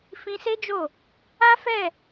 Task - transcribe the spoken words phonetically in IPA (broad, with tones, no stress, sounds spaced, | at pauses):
f ĩ˧ s e˦ d͡ʒ o˦˨ | a˦ f ɛ˦˨